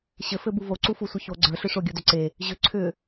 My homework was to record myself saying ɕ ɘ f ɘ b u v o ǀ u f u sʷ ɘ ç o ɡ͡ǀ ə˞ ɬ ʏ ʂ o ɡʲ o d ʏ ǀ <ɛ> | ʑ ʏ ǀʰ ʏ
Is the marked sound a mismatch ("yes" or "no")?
yes